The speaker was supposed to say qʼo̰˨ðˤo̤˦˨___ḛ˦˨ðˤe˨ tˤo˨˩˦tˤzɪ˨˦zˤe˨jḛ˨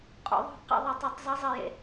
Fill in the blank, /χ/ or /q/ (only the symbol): q